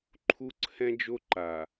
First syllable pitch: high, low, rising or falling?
high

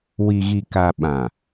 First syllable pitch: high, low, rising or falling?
low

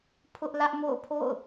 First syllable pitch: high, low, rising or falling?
high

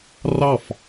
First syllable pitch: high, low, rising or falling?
falling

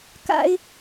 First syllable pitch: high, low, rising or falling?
high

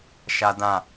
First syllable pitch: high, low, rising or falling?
high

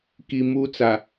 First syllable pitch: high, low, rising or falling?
low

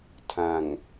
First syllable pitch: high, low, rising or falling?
low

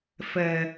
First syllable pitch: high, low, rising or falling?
low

